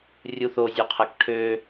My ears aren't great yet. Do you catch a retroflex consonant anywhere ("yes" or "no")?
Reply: yes